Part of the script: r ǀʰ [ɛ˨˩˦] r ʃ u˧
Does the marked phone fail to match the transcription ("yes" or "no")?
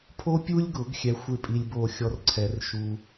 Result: no